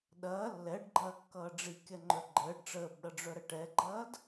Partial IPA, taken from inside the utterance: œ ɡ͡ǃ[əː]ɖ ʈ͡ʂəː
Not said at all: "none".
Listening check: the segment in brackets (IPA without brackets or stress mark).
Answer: əː